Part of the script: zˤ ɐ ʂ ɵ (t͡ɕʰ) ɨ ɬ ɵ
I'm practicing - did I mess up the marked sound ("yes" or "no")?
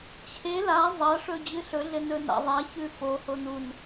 yes